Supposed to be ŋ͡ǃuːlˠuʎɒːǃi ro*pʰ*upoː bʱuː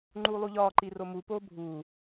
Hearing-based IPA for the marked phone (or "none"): m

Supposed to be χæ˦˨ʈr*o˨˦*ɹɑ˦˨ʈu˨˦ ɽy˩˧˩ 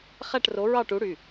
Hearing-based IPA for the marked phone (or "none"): o˨˦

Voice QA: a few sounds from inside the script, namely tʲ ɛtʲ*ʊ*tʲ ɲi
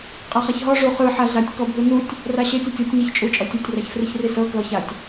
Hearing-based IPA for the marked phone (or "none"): ɔ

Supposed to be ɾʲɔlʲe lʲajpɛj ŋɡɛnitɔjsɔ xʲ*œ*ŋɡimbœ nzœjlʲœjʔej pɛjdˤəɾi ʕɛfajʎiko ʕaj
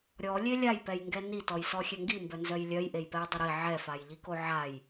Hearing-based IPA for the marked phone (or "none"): ɛ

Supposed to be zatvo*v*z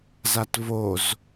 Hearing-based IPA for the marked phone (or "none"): none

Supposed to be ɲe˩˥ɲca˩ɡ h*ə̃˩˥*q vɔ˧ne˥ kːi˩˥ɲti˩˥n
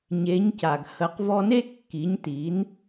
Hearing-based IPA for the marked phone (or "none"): ə˩˥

